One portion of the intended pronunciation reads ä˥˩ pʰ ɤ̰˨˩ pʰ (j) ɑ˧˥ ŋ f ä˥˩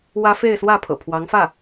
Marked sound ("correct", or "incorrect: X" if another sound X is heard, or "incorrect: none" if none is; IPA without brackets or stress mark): incorrect: w